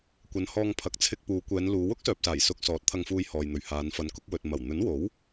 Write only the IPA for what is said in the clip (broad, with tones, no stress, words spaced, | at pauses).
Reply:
kʷɐ˨˧nhɔː˧ŋpʰɐ˨˥k̚ t͡sʰɪ˧k̚puː˨˧kʷɛː˨˧nluː˨˧ wʊ˥k̚sœː˨p̚saː˨˩j sʊ˧k̚sɔː˨˥t̚ t̪ʰɐ˧ŋfuː˧jhɔː˨jn̪ɵ˨ɥ haː˨˧nfɐ˨˧nkʊ˨˥k̚ wɵ˨t̚ mɐ˨˩wn̪ɵ˨˥nwo˨˥w